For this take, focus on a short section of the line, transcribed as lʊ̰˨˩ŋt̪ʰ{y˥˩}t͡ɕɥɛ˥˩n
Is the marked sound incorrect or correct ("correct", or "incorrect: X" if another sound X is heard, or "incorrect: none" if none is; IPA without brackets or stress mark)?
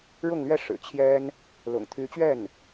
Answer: incorrect: y˧˥